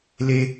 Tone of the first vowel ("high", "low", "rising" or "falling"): high